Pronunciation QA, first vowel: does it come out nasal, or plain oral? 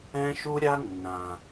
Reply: nasal